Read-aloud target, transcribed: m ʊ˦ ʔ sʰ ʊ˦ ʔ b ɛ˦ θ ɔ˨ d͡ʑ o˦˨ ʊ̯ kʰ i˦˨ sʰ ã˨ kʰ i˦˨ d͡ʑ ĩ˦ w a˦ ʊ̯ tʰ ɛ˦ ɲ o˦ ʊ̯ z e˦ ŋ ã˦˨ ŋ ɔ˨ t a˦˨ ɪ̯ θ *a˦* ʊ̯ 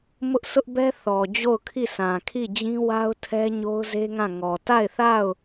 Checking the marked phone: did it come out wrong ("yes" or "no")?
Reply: yes